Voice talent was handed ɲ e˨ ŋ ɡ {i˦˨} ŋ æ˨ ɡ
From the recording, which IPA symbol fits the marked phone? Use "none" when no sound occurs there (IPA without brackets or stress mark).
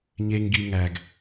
i˨